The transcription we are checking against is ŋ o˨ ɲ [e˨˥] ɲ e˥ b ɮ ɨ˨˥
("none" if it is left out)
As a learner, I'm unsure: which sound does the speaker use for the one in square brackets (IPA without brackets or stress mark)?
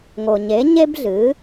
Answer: e˨˥